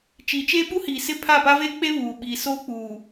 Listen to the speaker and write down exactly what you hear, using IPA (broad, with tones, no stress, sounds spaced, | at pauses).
t͡ʃ iː˨ t͡ʃ eː˦ ɓ u˦ h iː˨ s ɪ˦˨ pʰ a˦˨ p a˦ v e˦ k͡p e˦ β uː˨ ɓ iː˨ s oː˦ k͡p uː˨